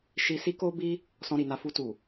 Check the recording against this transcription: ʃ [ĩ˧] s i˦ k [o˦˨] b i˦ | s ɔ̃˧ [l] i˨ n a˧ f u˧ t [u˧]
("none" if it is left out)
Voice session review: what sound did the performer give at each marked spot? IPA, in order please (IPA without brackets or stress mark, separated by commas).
i˧, o˦, ɾ, u˨